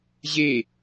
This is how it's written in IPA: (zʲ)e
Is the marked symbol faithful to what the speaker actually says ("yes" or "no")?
no